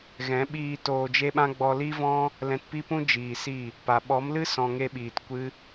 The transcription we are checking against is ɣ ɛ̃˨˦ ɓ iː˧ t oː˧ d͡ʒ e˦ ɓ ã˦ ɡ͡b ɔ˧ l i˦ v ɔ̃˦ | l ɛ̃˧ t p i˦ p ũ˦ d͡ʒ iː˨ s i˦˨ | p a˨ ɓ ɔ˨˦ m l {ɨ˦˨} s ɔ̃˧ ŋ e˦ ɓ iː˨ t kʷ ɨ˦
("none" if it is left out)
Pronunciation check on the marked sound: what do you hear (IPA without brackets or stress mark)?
ɨ˦